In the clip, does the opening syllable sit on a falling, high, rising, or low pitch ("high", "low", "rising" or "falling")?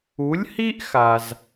rising